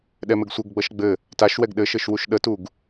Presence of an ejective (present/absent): absent